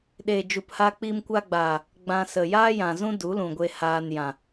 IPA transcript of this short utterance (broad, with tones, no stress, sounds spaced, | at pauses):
ɗ eː˨ d͡ʒ u˨ p h a˧ k͡p iː˧ m kʷ a˧ ɡ͡b aː˨ | ɡ͡b ã˧ s ə˨ j aː˦ j ã˨ z ũ˦ d u˨˦ l ũ˨ ɡʷ e˧ h aː˧ n j ã˨